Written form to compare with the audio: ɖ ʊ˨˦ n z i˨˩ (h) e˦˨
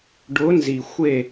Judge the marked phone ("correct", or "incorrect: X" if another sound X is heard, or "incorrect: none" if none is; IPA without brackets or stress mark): incorrect: xʷ